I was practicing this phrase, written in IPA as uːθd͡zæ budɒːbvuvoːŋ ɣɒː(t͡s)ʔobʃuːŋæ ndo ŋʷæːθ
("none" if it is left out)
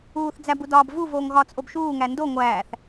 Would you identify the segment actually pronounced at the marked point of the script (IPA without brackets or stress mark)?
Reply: t͡s